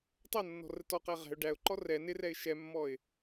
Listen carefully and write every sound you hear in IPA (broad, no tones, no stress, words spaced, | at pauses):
tˤʌnːɔ̤rə tɔqæ ʁɛ̤ʊ̯ ɖæʊ̯ǃɔ rɛ nɪrɛɪ̯ ʃɛmːɔɪ̯